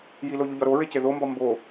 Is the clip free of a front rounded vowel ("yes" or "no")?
yes